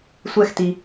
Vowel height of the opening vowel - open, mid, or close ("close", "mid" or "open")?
mid